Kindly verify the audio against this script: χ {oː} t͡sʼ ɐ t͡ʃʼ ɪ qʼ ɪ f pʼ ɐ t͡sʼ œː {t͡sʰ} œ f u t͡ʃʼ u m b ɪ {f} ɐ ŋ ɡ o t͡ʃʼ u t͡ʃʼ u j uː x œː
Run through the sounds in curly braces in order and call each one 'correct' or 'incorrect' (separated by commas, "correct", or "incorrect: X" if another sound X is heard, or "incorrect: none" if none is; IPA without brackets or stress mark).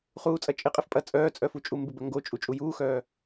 incorrect: uː, incorrect: t͡sʼ, incorrect: b